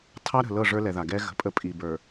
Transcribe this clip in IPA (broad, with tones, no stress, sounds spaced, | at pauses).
tʰ ɑ˦ ɾ ə̤˨ l ɤ˦˨ ʐ ə˞˦ l ɛ˨ ð a˨ ɡ ɛ˦ ɣ ə̤˨ pʼ ə˦ pʼ i˨ b ə˞˨